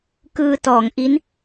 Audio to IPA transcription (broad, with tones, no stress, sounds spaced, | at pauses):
k ɯː˧ t ɔː˩˦ ŋ ʔ i˦˥ n